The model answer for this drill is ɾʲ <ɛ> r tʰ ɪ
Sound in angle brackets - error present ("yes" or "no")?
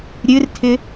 yes